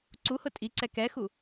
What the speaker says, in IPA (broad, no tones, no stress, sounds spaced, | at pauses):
ǀ u h ʊ tʼ i ǀ ɛ k ɛ x u